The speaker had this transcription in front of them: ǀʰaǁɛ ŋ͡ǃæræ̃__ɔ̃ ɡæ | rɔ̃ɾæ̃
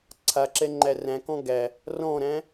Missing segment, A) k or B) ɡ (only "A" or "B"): A